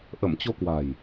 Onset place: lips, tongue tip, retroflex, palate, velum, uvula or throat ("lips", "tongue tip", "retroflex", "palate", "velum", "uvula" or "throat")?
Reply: throat